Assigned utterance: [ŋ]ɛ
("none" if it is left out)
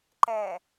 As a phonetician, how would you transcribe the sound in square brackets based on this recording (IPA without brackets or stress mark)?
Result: ǃ